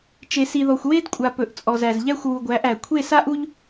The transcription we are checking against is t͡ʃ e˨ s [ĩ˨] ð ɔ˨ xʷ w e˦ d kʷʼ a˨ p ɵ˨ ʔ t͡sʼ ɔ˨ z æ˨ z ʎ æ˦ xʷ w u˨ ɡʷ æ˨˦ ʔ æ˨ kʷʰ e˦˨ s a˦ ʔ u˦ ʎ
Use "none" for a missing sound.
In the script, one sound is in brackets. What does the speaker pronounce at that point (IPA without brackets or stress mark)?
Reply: i˨